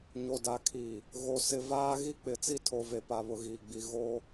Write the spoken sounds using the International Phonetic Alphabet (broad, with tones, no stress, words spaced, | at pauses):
ɲo˨da˨kʰiː˨ | ɣo˨ sɪ˨vaː˦ ɣi˦k͡pɪ˨t͡si˦ tʰo˨ve˨pa˨ βʊ˨ɣiː˨ɡ͡bi˨ ɣoː˦